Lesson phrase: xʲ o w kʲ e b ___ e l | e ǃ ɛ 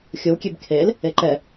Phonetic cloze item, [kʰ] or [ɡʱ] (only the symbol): kʰ